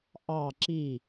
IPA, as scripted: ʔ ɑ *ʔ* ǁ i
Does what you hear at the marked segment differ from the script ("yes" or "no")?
yes